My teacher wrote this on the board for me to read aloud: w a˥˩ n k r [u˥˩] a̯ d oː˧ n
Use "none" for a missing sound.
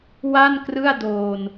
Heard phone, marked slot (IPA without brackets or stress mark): ɯ˥˩